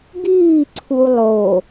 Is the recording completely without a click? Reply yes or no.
no